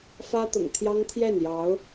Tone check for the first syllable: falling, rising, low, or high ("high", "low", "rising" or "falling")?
high